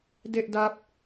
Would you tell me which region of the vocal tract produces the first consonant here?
tongue tip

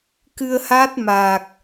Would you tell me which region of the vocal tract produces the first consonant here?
velum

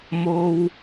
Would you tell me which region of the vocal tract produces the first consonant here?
lips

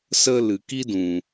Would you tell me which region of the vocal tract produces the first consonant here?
tongue tip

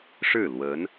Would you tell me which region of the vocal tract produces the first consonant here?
retroflex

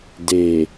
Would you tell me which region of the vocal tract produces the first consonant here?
tongue tip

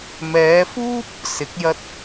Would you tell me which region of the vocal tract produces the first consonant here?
lips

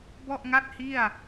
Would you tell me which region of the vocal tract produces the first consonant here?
lips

